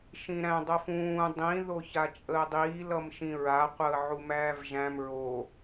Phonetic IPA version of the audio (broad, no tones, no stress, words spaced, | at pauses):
ʃĩɾæ̃ dˤɜfũː dˤĩ ðoçat͡ʃʼəːdˤiː lʌmʃĩɹa qʷəːʕumæːvʒæ̃m ɹo